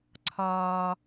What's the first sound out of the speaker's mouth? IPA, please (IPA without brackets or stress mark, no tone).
ǀʰ